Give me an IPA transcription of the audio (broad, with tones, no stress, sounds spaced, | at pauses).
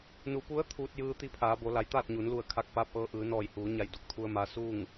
n u˩˧ p u˧˥ ə̯ t̪ʰ uː˧ t̚ j ɯː˧ t̪ i˧˥ pʰ aː˩˧ b o˩˧ l a˩˧ j t̪ aː˥˨ t̚ ɲ uː˩˧ n l u˧˩ ə̯ kʰ a˧ k̚ p aː˧˥ p̚ ʔ ɤː˧ ʔ ɯː˩˧ n ɔː˧˩ j h uː˩˧ ɲ a˧˩ j d u˧˩ k̚ t̪ʰ u˧ ə̯ m a˧˥ s uː˥˨ ŋ